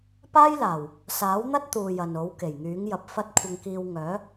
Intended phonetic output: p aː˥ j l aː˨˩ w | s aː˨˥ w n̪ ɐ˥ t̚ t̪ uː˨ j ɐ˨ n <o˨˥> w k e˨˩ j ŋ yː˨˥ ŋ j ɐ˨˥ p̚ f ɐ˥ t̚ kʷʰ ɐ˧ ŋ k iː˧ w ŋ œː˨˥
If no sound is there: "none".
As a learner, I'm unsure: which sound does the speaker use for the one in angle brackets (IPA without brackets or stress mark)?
o˨˥